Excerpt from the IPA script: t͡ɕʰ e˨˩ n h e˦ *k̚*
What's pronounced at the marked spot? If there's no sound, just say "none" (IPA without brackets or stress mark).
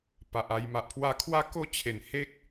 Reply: k̚